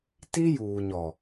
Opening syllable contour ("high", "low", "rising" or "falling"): high